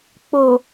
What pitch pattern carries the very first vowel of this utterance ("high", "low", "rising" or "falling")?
low